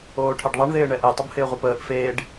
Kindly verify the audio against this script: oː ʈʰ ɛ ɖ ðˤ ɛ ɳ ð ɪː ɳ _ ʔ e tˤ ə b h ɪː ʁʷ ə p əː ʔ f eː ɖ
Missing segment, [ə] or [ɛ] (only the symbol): ɛ